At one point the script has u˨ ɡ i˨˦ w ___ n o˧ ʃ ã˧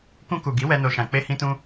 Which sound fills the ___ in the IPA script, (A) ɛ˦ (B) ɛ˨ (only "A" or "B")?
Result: A